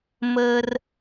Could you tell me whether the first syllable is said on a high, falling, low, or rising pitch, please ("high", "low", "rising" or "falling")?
high